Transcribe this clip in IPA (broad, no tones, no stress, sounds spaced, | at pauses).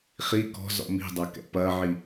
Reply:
χ i k ɔ̤ z ɔ̰ m i̤ dˤ a k ɛ̰ p ɐ ʕ i